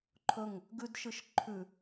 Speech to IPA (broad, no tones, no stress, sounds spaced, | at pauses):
ǃʰ ɵ ŋ | ɡ ʉ d ʃ ɨ ʃ ǃʰ ʉ